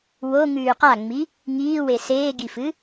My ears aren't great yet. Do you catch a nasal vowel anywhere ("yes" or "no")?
no